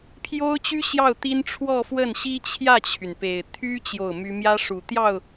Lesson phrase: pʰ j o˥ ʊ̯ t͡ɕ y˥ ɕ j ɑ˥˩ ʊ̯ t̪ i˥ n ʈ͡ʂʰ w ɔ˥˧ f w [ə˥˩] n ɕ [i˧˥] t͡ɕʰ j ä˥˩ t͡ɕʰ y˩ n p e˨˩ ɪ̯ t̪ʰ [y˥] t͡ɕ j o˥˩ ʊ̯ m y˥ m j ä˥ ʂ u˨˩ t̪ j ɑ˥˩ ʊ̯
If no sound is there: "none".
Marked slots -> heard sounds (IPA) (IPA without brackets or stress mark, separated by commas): ə˥˩, i˥, y˥